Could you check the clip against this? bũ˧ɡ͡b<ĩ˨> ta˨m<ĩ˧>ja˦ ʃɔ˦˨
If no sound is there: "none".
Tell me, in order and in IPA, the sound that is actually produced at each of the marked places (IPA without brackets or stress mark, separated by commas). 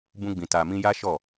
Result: ĩ˨, ĩ˧